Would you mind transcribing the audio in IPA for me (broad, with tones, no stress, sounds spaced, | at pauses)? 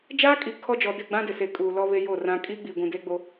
d͡ʒ aː˦ kʼ i˨ kʰ ɔ˦ d͡ʒ ɔ˨ d ɪ˦˨ ɡ͡b ã˦ d ɪ˨ s e˨ kʼ uː˨ l ɔ˦ β e˦ j o˦˨ r ã˦ kʼ iː˦ ɡ͡b i˨ ɡʷ ũ˨ d eː˦ ɡ͡b o˦